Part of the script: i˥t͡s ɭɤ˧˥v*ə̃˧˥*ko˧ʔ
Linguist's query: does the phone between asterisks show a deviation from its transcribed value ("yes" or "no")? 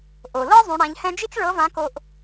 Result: yes